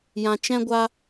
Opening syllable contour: low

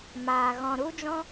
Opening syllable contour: low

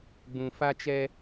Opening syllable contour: low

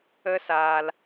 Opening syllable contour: high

